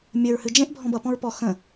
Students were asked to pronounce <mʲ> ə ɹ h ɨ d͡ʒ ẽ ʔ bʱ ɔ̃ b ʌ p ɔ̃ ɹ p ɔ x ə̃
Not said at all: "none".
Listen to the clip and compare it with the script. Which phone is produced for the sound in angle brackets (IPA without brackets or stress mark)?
mʲ